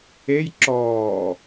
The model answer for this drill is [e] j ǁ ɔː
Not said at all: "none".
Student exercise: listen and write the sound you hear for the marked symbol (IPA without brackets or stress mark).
e